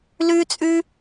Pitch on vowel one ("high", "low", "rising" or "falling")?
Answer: high